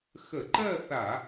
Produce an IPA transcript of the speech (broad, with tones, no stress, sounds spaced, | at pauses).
x ə˧˩˧ ǃ ɜ˥˧ θ a˧˩˧